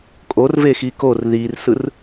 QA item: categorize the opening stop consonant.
ejective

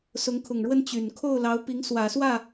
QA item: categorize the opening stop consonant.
aspirated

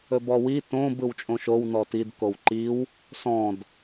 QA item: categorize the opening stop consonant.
plain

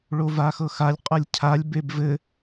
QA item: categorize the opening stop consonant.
ejective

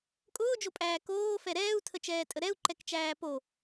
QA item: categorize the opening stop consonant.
ejective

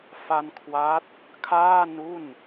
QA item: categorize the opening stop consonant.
aspirated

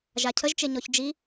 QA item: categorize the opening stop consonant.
aspirated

